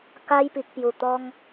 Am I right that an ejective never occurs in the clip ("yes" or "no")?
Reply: yes